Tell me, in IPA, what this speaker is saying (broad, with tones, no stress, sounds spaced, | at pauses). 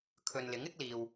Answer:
kʰ ɵ˨ n l ɪ˨˥ ŋ ɪ˥ k̚ l iː˨ w